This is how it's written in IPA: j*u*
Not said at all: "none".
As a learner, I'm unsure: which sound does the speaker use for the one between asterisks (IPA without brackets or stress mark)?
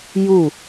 u